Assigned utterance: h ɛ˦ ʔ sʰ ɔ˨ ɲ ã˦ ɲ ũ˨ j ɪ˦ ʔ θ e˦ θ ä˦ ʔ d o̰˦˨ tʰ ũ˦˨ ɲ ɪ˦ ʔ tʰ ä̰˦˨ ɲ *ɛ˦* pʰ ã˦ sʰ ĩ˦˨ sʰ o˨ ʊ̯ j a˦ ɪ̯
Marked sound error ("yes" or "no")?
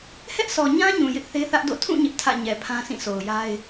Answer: yes